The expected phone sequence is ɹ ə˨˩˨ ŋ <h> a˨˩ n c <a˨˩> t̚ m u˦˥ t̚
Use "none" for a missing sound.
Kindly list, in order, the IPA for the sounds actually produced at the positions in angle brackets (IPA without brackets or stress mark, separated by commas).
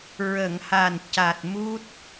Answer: h, a˨˩